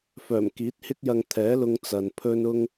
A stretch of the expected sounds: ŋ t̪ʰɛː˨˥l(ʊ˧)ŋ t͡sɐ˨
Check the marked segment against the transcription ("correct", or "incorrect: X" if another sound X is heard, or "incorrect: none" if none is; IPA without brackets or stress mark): correct